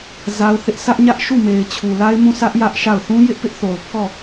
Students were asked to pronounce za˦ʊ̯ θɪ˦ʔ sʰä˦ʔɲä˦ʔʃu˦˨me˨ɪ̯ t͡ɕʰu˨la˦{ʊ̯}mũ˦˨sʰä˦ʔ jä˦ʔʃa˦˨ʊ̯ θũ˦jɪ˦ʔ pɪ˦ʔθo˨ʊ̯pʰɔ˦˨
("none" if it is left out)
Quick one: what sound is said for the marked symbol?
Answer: ɪ̯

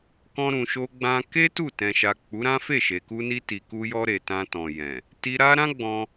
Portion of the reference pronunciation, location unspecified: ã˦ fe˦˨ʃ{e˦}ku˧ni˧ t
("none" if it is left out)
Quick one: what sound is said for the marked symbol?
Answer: e˨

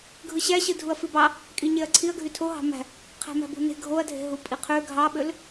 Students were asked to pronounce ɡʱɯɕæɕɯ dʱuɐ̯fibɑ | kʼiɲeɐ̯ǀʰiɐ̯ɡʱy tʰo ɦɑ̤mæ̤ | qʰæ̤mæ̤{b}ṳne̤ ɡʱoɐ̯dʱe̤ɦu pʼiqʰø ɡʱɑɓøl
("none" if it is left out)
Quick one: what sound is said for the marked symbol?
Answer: b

